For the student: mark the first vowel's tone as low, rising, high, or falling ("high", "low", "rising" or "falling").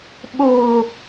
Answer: low